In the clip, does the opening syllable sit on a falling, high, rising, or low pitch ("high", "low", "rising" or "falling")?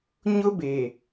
high